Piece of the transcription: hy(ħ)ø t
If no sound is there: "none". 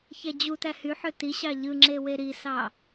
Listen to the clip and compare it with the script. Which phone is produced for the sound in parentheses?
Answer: ħ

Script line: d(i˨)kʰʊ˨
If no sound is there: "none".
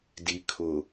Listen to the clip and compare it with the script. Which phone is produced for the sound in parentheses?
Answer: i˨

